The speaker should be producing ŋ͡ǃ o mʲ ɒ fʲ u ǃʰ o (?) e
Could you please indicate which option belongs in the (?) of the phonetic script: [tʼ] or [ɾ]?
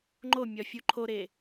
ɾ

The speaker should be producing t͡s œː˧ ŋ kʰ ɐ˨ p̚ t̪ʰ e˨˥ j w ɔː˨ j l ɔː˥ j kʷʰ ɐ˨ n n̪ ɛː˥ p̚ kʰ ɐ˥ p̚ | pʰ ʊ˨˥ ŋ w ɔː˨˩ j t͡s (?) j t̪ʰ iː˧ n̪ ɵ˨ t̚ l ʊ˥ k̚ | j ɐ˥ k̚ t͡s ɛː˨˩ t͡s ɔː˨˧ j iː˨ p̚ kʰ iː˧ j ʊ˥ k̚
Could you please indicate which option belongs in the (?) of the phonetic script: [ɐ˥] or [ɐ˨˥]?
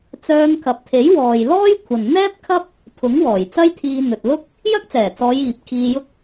ɐ˥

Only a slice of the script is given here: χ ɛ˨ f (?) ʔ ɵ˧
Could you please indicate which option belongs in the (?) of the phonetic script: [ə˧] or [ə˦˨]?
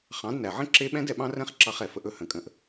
ə˧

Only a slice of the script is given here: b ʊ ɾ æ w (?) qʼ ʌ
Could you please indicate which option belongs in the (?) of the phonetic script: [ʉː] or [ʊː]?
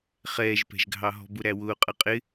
ʊː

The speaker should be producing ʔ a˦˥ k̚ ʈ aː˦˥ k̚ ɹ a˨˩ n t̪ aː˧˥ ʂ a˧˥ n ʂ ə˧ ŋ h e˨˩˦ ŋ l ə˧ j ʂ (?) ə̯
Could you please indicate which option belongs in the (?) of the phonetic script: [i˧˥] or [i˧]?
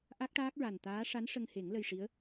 i˧˥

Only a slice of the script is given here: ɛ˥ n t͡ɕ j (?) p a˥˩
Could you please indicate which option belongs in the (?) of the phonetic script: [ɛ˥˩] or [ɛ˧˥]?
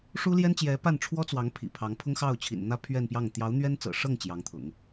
ɛ˧˥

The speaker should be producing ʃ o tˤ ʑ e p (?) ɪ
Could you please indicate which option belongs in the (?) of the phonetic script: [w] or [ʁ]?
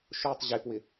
w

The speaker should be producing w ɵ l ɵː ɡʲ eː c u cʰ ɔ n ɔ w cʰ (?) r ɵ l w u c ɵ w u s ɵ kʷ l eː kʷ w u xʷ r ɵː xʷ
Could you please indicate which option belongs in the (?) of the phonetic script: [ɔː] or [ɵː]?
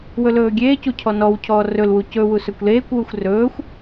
ɔː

